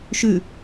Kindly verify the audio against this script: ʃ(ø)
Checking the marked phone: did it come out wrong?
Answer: yes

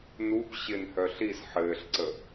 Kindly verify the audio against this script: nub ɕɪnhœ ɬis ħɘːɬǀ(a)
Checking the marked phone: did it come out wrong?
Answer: yes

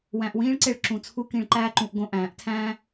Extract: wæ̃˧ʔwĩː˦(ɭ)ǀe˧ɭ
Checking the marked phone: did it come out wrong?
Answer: no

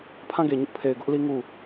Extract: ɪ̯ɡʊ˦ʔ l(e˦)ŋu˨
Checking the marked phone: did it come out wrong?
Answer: yes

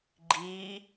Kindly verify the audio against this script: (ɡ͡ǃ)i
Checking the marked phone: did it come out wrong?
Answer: no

